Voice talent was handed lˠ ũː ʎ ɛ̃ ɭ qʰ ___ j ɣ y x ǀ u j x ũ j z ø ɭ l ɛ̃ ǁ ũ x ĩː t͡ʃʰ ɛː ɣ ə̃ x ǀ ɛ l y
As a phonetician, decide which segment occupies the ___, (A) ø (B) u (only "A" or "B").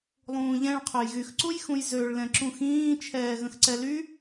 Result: A